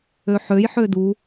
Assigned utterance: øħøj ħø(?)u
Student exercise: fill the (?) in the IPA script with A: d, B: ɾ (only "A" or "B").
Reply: A